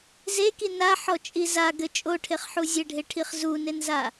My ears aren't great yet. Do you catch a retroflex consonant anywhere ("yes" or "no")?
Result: yes